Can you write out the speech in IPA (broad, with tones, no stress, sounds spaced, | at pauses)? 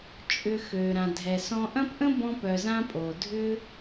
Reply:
t͡ʃʼ ʏ˨ x ø˨ ɾ ã˨ dʱ ɛ˨ s ɔ̃˧ ʔ ɐ̃˦ p ʔ ə̃˦ b ɔ̃˧ p œ˨ z ã˧ pʼ o˨ dʱ ʏ˦